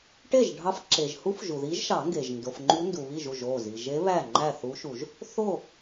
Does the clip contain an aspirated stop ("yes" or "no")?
no